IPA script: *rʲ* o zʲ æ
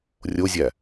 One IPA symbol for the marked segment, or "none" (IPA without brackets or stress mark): rʲ